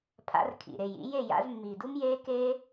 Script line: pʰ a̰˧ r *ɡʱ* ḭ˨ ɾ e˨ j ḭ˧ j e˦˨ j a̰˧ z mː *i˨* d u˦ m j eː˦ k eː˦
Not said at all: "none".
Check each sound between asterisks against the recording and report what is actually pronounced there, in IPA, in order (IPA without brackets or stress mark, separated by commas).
kʰ, i˨